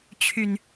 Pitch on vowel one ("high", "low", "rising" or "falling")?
low